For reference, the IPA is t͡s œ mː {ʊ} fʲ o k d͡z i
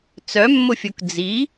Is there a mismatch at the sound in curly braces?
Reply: no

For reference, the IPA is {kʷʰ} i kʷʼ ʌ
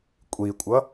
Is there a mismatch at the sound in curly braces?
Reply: yes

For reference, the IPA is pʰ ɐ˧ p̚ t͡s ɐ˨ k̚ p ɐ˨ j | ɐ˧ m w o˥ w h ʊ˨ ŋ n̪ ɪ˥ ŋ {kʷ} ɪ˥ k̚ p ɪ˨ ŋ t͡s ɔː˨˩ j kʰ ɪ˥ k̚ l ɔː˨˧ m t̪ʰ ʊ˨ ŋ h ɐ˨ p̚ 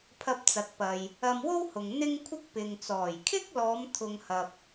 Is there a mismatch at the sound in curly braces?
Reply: yes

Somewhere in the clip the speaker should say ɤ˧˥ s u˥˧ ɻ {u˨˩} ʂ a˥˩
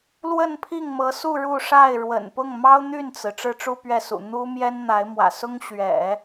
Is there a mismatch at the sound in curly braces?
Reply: yes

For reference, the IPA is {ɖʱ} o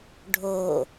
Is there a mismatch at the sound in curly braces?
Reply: no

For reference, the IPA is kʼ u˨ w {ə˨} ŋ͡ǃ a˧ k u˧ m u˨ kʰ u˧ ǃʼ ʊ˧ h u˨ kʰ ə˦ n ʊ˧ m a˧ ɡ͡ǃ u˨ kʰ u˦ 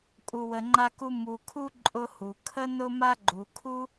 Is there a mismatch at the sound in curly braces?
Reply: no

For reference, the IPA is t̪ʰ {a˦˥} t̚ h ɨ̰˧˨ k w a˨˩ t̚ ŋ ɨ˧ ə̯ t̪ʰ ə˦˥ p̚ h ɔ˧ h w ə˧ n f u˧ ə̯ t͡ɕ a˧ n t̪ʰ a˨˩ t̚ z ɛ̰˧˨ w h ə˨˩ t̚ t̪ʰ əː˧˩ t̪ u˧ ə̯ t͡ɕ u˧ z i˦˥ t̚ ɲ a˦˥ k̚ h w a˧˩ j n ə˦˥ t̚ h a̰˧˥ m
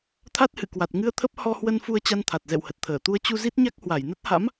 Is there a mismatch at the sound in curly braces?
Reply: no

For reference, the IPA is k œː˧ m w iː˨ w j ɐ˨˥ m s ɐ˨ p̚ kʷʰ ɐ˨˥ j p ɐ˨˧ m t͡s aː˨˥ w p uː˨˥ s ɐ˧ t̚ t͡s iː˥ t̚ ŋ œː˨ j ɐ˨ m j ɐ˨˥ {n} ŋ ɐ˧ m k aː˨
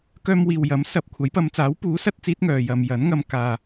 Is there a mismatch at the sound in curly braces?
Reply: no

